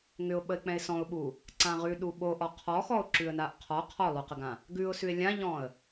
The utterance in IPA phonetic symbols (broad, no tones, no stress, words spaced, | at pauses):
ŋʏʊ̯ɓəɪ̯k͡pɛ̃ɪ̯ sɔ̃ʊ̯ɓu | ǀãʁʉɗu ɓoʔɔ qʰɔxɔʊ̯ ǁʉə̯naʔqʰɔ qʰɔlˠʉqəɡã | ɡʉʊ̯sʉɪ̯ lʲãʎɔ̃ə̯